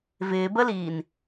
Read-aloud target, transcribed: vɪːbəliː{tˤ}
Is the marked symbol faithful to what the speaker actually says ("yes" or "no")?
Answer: no